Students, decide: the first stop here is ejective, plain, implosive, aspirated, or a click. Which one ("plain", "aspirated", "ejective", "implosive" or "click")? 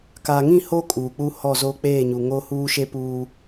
plain